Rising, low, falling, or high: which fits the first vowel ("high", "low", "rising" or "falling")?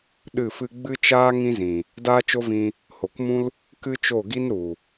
falling